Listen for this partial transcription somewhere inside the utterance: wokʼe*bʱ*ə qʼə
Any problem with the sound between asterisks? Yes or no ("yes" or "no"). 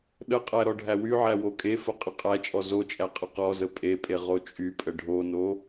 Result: yes